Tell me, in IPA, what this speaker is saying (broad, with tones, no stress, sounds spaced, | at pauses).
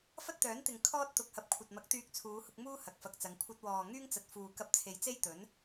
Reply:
f ɐ˥ t̚ t̪ œː˨˥ n t̪ ɪ˨ ŋ kʰ ɔː˥ t̚ t̪ ʊ˨ k̚ h ɐ˨ p̚ kʷʰ ɐ˨ t̚ m ɐ˨˥ k̚ t̪ yː˧ k̚ t͡sʰ uː˨˧ h ʊ˧ k̚ m uː˥ h ɐ˨ k̚ f ɐ˨ k̚ t͡s ɐ˨˧ ŋ kʷʰ ɐ˧ t̚ w ɔː˨ ŋ yː˥ ŋ t͡s ɐ˨ t̚ f uː˨ k ɐ˧ p̚ t͡sʰ e˨ j t͡s e˥ j t̪ ɵ˨˥ n